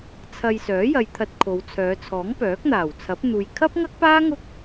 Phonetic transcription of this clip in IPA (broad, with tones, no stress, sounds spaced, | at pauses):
t͡sʰ ɐ˧ j s œː˨˥ j ɐ˧ j t̪ʰ ɐ˧ t̚ kʰ o˨˧ w t͡sʰ œː˨˧ t͡sʰ ɔː˨˥ ŋ p œː˨˥ k̚ n̪ aː˨˩ w t͡sʰ ɐ˨˥ p̚ n̪ uː˨ j kʰ ɐ˥ p̚ ŋ ɐ˥ k̚ p aː˥ ŋ ʊ˥ k̚